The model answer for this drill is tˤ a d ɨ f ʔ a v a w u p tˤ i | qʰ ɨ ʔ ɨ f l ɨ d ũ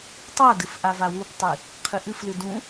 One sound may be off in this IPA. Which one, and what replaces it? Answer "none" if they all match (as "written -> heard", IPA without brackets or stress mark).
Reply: none